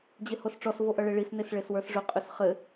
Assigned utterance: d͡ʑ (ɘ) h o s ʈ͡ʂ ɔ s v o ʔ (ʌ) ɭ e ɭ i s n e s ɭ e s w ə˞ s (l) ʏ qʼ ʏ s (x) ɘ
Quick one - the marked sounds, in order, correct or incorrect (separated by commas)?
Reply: incorrect, correct, incorrect, incorrect